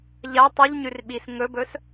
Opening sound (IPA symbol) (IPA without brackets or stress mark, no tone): ʎ